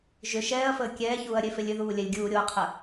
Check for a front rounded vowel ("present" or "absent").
present